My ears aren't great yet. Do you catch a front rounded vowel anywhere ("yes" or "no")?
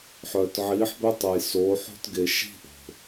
yes